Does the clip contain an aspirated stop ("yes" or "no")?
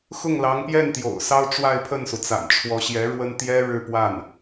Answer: yes